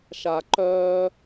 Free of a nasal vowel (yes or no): yes